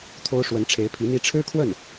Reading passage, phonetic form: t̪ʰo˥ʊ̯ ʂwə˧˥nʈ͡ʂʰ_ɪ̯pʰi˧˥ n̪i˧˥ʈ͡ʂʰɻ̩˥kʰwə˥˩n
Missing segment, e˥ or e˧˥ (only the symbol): e˧˥